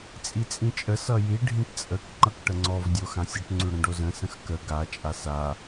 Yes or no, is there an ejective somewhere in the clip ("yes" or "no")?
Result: yes